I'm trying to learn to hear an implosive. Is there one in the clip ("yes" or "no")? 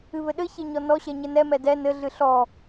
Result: yes